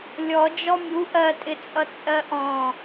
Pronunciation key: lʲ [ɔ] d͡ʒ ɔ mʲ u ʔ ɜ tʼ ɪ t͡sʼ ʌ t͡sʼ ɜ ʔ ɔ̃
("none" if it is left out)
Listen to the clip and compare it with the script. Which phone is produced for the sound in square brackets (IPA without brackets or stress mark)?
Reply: ɔ